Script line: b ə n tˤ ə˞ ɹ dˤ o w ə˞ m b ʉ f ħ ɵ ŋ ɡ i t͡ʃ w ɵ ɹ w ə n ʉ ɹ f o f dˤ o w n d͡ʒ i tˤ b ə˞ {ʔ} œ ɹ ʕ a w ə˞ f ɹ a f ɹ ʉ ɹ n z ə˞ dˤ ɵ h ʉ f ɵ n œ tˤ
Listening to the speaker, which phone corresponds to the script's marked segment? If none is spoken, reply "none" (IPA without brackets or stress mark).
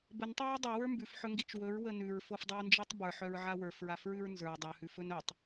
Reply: ħ